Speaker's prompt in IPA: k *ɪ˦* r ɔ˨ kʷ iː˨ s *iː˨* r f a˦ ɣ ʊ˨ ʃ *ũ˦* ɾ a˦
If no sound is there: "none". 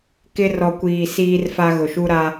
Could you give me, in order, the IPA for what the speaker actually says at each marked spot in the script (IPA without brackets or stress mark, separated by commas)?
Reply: ɪ˦, iː˦, u˦